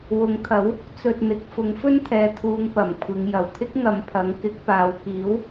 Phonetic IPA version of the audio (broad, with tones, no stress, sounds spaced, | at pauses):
w ʊ˨˥ ŋ t̪ʰ ɐ˨˥ w | t͡s ɵ˧ t̚ n̪ ɪ˨˥ k̚ f ʊ˨˥ ŋ f ɵ˥ n t̪ʰ ɛː˨˧ t̪ʰ uː˨˧ ŋ p ɐ˨˩ m kʷʰ ɪ˨˧ ŋ j ɐ˨˩ w t̪ʰ ɪ˥ k̚ ŋ ɐ˨ m pʰ ɐ˨˥ ŋ k ɪ˨˥ k̚ p aː˨˧ w k iː˨˥ w